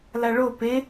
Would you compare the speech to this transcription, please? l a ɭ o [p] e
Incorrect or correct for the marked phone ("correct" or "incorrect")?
correct